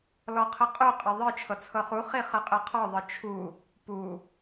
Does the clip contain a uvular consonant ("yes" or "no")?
yes